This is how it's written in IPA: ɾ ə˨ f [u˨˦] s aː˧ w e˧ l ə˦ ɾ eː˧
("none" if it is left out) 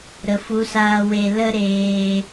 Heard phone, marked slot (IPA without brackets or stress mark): u˨˦